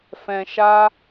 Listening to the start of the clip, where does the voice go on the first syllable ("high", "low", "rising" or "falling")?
low